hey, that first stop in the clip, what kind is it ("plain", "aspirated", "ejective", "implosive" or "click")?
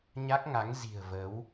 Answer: plain